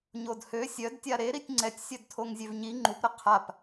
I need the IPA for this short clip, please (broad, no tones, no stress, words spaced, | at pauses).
ɲodhø sʲœdtʲa ɾeɾitʲ ŋ͡ǀɛtʲ sʲœdtʰoŋzʲøvɲi ŋ͡ǃupɾə qʰap